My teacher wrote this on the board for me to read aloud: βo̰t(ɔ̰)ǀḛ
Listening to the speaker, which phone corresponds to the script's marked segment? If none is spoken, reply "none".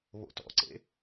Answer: ɔ̰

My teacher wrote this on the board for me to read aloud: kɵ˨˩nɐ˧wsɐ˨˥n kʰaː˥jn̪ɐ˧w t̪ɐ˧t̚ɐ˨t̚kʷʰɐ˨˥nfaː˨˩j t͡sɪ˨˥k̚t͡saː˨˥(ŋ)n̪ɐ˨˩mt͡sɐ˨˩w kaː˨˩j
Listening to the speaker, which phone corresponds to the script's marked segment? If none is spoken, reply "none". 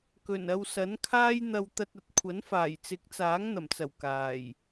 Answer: ŋ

